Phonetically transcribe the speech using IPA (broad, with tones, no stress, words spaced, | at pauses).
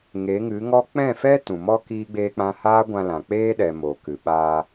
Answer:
ŋe˨˦ŋɨ˨˦ŋɔ˦ k͡pɛ̃˦˨fɛ˦ tũ˨mɔ˦ kiː˦ɡ͡beː˦k͡pã˦ haː˦ɡʷã˧lã˨ k͡peː˦ɗɛ˨ moː˨kɨ˨ɓaː˧